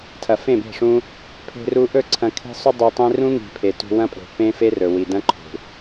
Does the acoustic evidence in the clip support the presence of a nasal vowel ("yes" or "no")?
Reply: yes